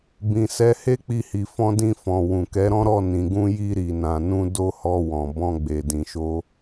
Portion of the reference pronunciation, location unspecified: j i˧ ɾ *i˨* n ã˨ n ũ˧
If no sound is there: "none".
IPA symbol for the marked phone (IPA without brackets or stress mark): i˨